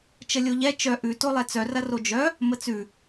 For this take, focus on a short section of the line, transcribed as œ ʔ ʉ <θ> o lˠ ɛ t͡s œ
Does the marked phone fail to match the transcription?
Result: yes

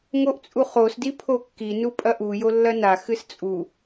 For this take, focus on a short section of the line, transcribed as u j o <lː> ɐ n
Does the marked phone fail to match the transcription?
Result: no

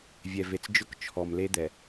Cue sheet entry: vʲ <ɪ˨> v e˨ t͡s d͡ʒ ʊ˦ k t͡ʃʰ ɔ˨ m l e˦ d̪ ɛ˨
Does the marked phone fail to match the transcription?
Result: yes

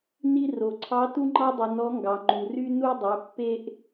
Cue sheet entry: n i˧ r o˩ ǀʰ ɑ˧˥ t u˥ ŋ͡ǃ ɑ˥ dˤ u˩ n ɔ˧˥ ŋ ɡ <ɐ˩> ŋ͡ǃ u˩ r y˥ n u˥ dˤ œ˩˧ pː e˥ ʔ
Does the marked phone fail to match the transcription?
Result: yes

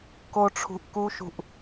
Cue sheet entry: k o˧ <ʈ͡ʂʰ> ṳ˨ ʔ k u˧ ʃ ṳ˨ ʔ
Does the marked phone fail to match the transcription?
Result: no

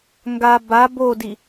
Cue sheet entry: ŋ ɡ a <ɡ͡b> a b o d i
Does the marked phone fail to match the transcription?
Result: yes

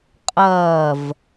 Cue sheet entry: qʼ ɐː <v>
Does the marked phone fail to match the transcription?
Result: no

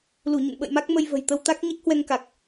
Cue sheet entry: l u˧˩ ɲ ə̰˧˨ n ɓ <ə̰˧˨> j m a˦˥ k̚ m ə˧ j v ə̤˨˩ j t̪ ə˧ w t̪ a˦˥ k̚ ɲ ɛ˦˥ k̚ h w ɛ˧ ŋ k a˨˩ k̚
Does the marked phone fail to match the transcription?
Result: no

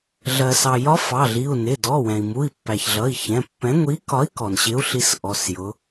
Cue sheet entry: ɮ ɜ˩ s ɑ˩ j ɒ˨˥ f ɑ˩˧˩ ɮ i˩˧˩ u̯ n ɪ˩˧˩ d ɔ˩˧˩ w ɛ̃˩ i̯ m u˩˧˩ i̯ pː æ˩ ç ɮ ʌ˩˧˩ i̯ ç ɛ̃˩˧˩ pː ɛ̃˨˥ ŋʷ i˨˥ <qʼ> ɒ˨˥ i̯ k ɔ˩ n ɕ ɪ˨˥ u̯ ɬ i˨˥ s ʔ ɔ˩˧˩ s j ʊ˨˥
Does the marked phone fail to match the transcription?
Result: yes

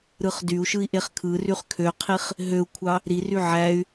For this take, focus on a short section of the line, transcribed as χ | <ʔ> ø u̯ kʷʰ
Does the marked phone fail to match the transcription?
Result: yes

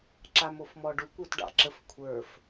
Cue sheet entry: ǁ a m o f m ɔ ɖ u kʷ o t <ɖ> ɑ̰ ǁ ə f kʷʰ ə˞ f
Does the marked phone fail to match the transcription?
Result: no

